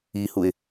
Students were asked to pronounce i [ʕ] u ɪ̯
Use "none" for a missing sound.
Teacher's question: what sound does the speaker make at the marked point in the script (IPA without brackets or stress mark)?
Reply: h